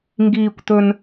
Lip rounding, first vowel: unrounded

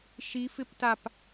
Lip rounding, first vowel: unrounded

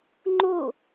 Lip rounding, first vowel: rounded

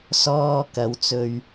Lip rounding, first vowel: rounded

